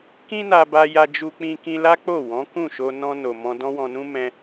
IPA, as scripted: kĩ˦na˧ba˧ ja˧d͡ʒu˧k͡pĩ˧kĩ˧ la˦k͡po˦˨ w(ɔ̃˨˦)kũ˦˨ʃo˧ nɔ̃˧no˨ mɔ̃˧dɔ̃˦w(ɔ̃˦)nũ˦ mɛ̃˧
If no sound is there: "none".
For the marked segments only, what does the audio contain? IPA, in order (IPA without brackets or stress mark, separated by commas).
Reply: ɔ̃˨˦, ɔ̃˧